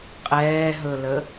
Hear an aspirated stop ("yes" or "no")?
no